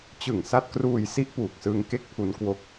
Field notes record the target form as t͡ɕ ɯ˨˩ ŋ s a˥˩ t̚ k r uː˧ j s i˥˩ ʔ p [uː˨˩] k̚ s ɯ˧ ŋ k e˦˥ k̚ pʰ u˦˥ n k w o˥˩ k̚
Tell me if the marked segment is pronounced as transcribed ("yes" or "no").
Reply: yes